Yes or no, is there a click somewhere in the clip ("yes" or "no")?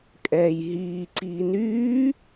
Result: yes